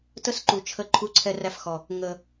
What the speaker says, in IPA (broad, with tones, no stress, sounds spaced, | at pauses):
t ə˦ s ǃ u˨ t͡ʃʰ ə˦˨ ǃʰ u˦ ǀʰ ɛ˦ r æ˦ f x ɔ˨ | ŋ ə˨